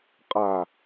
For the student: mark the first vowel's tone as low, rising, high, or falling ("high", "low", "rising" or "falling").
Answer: low